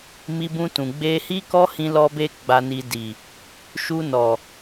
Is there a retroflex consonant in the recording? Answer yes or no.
no